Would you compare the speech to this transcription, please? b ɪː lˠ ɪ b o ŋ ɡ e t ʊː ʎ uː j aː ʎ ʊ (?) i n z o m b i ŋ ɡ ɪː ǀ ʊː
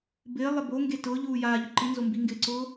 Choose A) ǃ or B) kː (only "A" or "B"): A